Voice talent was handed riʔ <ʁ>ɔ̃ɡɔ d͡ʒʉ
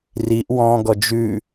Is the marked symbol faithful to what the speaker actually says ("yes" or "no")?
no